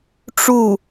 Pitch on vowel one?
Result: falling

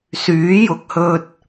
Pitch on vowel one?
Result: rising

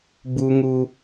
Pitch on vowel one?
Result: high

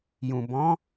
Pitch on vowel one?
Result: low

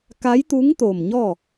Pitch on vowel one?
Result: rising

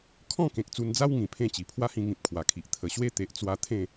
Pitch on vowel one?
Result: falling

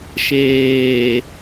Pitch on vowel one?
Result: low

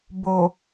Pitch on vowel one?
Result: low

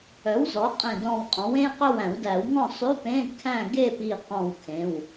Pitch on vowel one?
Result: rising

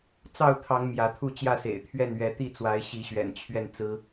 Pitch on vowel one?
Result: falling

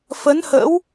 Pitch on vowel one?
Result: rising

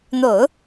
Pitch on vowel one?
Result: low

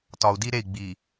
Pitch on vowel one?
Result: low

